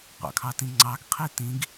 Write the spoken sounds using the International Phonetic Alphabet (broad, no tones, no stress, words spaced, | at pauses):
qʷɑ̰kʰɑtĩŋ͡ǀɑɡ qʰitĩɡ